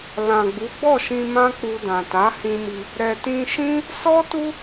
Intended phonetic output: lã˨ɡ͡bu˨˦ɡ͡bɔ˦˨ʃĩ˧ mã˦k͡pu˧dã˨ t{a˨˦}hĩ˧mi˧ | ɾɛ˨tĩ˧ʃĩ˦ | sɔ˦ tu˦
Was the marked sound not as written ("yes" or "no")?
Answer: no